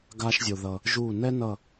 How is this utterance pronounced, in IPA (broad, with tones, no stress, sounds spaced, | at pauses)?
ɡ a˦ ʃ zʲ o˨ ð ʌ˨ | ʒ u˦˨ n ɛ˦ n ʌ˦˨